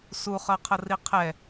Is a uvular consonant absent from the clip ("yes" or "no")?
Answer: no